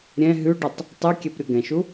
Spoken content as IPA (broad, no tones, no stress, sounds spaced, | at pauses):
ɾʲ ɛ̃ ɦ ʉ ɖ ʉ tˤ | tˤ ʉ kʲ ɛ p ɾʲ ɤ ɡ ɛ̃ ʃ u